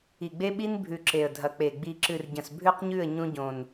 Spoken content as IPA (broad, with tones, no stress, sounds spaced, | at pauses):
i˨ ɡ͡b e˦ ɓ i˦ n bʱ ʉ˨ ǁ e˨ ə̯ dʱ ɐ˨ k͡p e˨ ɡ͡b i˨ ǁ ɨ˨ r ɟ ɐ̃˨ s bʱ ʉ˦ q ɲ ʉ˦˨ ə̯ ɲ ũ˦ ɟ õ˨ n